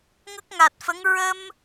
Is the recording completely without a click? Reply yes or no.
yes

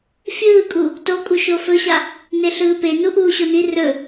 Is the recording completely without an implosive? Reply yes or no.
yes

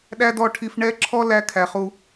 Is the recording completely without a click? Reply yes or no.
no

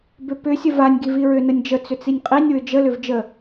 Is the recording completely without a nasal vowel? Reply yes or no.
yes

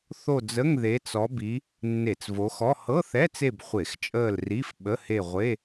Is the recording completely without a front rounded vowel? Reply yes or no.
yes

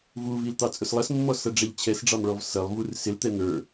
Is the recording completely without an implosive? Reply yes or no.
yes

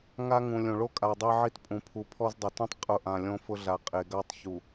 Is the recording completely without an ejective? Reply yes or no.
no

